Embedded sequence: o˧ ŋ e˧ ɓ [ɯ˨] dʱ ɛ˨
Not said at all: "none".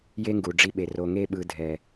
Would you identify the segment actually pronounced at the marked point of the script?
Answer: ɯ˨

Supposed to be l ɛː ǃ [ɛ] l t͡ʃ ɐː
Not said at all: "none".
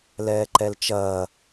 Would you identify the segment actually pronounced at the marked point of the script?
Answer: ɛ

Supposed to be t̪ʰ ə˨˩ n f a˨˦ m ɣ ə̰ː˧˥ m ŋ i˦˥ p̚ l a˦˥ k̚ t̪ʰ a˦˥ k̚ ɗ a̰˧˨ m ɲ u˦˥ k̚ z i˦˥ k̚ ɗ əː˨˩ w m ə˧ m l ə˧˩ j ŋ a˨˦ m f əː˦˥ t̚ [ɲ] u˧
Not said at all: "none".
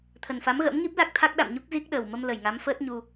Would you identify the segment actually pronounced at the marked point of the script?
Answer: ɲ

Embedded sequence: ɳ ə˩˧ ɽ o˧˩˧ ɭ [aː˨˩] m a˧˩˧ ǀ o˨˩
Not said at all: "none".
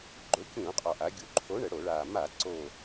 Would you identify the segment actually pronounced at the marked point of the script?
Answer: aː˨˩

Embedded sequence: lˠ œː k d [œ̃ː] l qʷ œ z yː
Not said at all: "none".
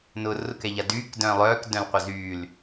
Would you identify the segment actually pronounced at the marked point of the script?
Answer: œ̃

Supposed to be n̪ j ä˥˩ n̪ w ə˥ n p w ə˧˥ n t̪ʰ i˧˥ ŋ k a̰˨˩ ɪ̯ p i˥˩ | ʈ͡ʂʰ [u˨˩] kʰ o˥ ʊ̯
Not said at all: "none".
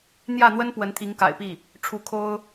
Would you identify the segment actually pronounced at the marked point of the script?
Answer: u˧˥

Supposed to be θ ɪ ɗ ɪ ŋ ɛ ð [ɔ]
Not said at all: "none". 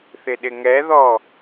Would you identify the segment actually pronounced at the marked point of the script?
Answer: ɔ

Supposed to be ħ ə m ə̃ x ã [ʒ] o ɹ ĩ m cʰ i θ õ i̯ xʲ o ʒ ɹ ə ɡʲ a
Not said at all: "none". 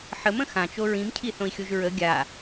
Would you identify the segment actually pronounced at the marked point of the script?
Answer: t͡ʃ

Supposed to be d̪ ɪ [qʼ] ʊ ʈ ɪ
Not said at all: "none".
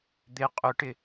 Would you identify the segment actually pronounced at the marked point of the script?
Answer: qʼ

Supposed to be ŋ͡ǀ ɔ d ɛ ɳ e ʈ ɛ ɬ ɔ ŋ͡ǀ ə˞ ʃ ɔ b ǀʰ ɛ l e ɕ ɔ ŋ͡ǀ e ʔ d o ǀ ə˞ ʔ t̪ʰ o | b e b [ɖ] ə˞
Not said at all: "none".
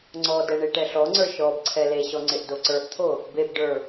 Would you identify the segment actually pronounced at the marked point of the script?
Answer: ɖ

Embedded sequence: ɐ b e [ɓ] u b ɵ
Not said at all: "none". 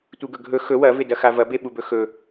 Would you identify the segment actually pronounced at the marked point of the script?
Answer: ɓ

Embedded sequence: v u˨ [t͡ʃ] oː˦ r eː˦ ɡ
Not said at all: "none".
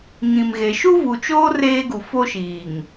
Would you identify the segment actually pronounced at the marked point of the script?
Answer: t͡ʃ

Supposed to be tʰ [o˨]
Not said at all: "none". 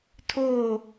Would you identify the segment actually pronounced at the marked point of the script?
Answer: o˦˨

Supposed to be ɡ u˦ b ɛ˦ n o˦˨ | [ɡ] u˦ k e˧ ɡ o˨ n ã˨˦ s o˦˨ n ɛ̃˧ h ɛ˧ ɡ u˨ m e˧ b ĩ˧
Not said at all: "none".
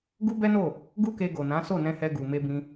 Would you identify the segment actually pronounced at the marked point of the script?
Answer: ɡ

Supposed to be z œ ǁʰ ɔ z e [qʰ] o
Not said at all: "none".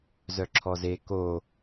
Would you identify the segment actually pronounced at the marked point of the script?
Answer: k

